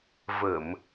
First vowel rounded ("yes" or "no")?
no